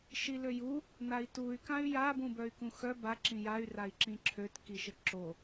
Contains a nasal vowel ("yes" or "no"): yes